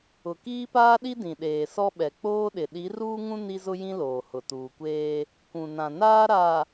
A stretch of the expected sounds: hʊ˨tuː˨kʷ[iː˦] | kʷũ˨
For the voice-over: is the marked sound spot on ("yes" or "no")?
no